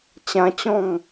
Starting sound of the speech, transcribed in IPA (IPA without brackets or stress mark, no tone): t͡ɕ